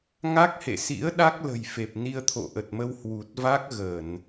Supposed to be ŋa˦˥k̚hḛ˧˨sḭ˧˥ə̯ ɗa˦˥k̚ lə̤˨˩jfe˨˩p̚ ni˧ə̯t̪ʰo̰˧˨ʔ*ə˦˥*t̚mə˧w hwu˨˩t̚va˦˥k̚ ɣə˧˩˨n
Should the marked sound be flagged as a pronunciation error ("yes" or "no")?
yes